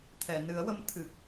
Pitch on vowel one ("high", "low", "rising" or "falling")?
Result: low